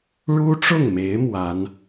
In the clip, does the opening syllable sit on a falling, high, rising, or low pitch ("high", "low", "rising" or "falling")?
high